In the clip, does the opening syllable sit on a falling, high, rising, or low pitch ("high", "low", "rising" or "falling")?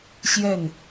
falling